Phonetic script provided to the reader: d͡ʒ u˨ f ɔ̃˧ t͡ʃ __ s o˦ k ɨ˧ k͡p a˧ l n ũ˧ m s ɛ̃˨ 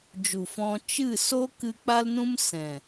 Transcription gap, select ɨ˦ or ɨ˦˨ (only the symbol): ɨ˦˨